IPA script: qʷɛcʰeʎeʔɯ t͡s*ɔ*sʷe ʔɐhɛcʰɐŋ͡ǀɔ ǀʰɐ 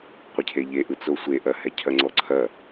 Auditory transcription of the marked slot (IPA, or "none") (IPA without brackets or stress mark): o